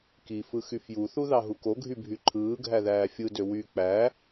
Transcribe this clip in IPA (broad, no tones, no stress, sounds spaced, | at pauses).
k i f ɯ x y f j u θ u ð ɑ ɦ u k o ɡʱ y bʱ y ǃʰ ɯː ɡʱ æ ð æː fʲ ɯ d ø w y k͡p æ